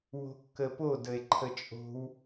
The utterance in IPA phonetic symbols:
w o̤ kː ə p o d ə e̯ ǃʰ ə t͡ʃʼ o̤ w

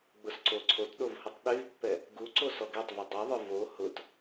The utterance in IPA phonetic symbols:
ɡ͡b ʊ s ǀ o ǀʰ o t ɗ o v h ʊ tˤ ɗ y v pː ɛ | ɡ u ǀ o s ɔ ɡ ɛ tˤ v y dˤ y ðˤ ʊ v o h ʊ t

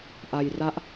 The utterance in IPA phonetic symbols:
ʔ a˧ j r a˦˥ ʔ

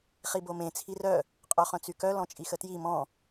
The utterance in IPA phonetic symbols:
χ i b o m ẽ t͡sʰ i r œ | qʼ œ χ œ̃ t͡s y k œ l ɔ̃ t͡ʃʼ i x ə t j i m ɔ̃

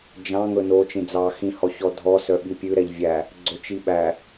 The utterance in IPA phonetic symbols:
d͡ʒ ɑ̃ ŋ ɵ n o t͡ʃ ĩ d͡z ɑ x ĩ h ɔ ç ɔ dʱ ɔ s œ ɓ i pʲ ʉ ɾ ɛ ʎ vʲ æ | ɡ͡ǀ ɵ t͡ʃ i ɓ æ

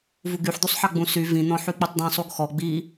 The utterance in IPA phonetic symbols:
v u ɡ y ħ d̪ u sˤ ħ ɑ ɡ͡b ũ s y v ĩ n̪ ɔ̃ ħ y k͡p y tˤ d̪ ĩ sˤ u ɡ x ɔ ɡ͡b i

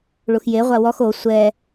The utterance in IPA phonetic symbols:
ɭ u x j e ʁʷ a w ɔ x o sʷ ɛ

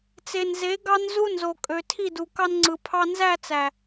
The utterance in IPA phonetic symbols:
t͡s e˨ n z e˨˦ ɡ ɑ˦ n z u˦ n z o˨ kʼ ø˨ tʰ i˦˨ d u˨ k ɑ˦ n ŋ͡ǀ ɯ˨ pʰ ɑ˨ n z æ˦˨ t͡s æ˨

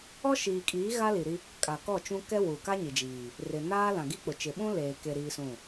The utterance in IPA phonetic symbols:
ɔ˦ ʃ iː˨ kʼ iː˨˦ ɣ a˦ l i˨ ɾ i˦ | kʼ a˨ k ɔ˦˨ t͡ʃ ũ˦ k ɛ˦ w u˨ k a˦ ɲ i˨ d͡ʒ iː˨ | r ɪ˨ n aː˦ l ã˨ ɡ i˦ k͡p ʊ˨ t͡ʃ ɪ˨ ɓ ũ˦ l eː˨ k e˨ ɾ iː˦ s ũ˦˨

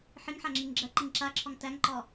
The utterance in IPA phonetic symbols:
ħ i ŋ ħ a ŋ͡ǁ i ŋ ɡ͡ǁ ɜ ǃ i ŋ ǁ a ǁʰ ɒ ŋ t æ ŋ ǃ ɒ

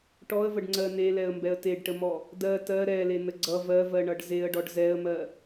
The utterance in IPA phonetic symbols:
ʈ ɔ ə̯ v ə ɖ ŋ͡ǀ ɜ n e l ɛ ə̯ m b ɛ ə̯ t e ɖ ʈ ə m ɔ | d ɜ t ɜ ɾ ɛ l e n ə ɡ͡ǀ ʌ v ɜ v ɜ ɳ ʌ ɖ z e ə̯ ɖ ɔ ɖ z ɛ ə̯ m ɜ

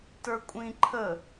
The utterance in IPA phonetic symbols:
t ə˞ kʷʼ ĩ ǃʰ ə

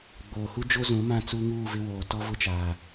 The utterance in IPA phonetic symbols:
ɡ͡b oː˨ h u˦ d͡ʒ o˦ z ũ˨˦ m ã˦˨ t͡s u˦ ŋ uː˦˨ v ɪ˦ w oː˨ t ɔ˦ v ʊ˦ t͡ʃ aː˨

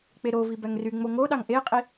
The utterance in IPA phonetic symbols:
k͡p e ɾ o v i b æ ŋ r y ŋ͡m o ŋ o ɗ ɑ ŋ ʔ e qʼ i

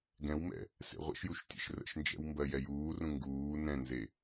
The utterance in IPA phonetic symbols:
ɡ ɛ̃ w m ɛ̰ | s ḛ ʁʷ ə̰ ʃ j u ʃ tʲ ɛ̰ ʃ r ə̰ ʃ n d͡ʒ ɛ̰ w m b ɜ j ɛ j uː r ũ ŋ ɡ uː n ɛ̃ n z e

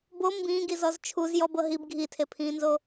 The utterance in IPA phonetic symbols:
b o m b ĩː ɡ i z ɔ z t͡ʃʰ u z j ɔ b ɤ ɦ i b ɡʱ i tʰ e pʰ ĩː n z o

